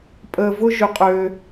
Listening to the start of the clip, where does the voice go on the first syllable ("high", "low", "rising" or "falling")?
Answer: low